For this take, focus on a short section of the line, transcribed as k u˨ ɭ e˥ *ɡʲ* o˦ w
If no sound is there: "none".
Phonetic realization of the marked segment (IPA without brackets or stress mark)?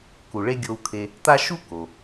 ɡʲ